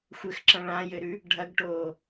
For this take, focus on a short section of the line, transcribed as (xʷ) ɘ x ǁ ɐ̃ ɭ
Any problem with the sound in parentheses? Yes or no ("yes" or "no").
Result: no